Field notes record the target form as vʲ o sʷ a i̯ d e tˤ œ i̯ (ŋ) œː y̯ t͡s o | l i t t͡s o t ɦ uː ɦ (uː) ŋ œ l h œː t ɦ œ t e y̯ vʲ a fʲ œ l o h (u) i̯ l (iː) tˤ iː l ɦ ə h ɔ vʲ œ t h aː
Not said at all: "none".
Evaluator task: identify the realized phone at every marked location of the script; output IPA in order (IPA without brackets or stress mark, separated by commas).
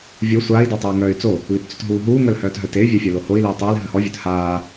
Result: ŋ, uː, o, iː